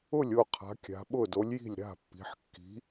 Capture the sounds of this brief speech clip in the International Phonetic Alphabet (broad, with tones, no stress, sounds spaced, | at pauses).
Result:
ʊ˥˩ lʲ o˥˩ qʰ a̤˩˧ kʲ a̤˩˧ ɓ ʊ˥˩ d o˨˥ lʲ j i̤˥˩ lʲ ɾ a̤˥˩ pː i̤˩˧ ħ kː i̤˨˥